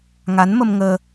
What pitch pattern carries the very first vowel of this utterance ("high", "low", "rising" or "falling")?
rising